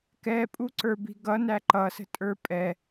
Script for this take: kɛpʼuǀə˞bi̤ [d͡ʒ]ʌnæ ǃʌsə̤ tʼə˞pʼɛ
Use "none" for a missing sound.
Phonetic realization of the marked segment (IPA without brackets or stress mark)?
ɡ